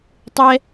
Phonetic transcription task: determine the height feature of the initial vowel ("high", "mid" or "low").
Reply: mid